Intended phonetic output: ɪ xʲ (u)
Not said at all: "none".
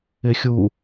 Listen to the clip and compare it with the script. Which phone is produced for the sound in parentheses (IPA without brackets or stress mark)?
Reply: u